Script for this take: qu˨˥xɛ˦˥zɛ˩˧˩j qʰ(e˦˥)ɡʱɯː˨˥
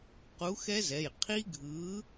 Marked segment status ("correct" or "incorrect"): incorrect